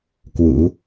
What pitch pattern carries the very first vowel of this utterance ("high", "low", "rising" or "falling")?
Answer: rising